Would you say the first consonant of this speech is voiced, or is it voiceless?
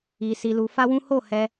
voiceless